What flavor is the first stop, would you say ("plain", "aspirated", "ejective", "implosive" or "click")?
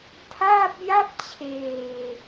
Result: aspirated